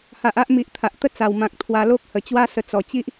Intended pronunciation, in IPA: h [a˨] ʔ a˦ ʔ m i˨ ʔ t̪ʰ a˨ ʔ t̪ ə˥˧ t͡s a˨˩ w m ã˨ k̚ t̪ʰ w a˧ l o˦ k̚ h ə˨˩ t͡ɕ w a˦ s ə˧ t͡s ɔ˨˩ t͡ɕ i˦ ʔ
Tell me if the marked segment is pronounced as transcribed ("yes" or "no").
yes